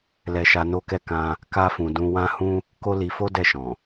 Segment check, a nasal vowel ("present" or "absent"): present